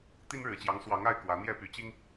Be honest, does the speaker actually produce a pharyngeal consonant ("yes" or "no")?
no